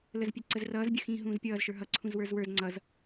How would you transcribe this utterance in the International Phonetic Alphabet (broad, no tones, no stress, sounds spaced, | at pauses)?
l ə z pʲ ɛ ǀ ə z r ʌː z bʲ ə x ĩː ɦ ũː z pʲ ʌː z ʃ ə˞ ɦ ʌ ǀʰ ũ z w ə˞ z w ə˞ z ŋ͡ǀ ʌ z